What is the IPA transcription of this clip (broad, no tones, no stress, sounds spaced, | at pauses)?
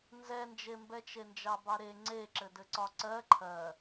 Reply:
n z ɛ n d͡ʒ e m b ɛ t͡ʃ e n d͡ʒ ɑ b ɑ ɾ e ŋ͡ǀ e ǁ ɘ d ɘ ǀ ɒ ǀ ɜ ǃʰ ɜ